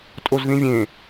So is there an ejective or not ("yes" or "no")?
yes